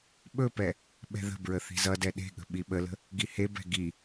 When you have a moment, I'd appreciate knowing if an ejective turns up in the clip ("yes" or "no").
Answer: no